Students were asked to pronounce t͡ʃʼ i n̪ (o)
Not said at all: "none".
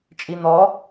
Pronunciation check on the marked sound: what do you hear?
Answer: ɔ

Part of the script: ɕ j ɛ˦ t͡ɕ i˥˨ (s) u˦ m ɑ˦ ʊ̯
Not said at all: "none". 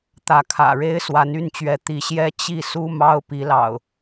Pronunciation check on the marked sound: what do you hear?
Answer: s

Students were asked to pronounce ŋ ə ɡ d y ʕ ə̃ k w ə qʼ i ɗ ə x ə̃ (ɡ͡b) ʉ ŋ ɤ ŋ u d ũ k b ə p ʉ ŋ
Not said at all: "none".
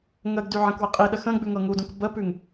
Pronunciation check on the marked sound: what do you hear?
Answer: ɡ͡b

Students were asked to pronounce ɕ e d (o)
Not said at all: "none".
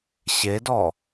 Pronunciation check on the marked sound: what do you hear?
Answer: ɔ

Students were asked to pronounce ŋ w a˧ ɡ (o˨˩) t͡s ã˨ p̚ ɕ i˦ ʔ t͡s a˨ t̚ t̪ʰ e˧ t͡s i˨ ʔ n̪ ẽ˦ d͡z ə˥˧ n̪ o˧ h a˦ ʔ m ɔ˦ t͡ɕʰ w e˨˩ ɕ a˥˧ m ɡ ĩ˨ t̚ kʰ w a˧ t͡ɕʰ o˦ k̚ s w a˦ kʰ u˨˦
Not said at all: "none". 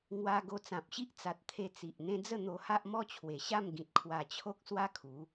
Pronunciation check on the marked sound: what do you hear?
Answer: o˧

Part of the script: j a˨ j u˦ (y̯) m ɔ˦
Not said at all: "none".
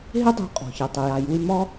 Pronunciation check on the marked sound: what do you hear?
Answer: y̯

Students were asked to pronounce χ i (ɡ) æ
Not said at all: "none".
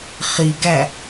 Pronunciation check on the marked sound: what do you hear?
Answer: ɡ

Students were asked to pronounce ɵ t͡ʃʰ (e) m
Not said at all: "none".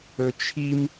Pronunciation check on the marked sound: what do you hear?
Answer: i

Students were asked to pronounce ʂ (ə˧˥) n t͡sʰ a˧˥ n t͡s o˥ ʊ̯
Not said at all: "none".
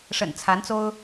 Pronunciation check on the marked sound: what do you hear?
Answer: ə̰˨˩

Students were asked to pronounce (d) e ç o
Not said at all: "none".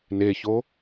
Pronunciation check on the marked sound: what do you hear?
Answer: n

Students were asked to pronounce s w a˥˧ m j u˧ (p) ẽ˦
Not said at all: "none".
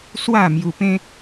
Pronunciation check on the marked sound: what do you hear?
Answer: p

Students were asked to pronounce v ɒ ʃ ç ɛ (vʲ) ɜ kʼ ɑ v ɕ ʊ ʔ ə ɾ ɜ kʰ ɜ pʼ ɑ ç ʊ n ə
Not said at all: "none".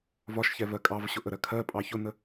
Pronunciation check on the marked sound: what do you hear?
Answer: v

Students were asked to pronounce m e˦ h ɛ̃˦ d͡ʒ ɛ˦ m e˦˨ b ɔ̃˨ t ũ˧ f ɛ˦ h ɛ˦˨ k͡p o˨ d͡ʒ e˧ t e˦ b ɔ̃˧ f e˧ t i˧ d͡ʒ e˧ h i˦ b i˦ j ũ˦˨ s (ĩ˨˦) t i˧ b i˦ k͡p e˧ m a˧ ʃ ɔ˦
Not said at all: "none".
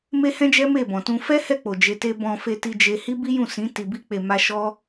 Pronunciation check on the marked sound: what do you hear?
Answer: ĩ˨˦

